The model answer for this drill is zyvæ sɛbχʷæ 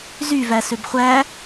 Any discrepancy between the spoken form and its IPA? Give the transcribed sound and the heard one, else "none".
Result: ɛ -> ø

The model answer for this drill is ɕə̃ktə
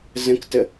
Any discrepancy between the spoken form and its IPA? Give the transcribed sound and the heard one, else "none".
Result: ɕ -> z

